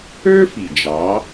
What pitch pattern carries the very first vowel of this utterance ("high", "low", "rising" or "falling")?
high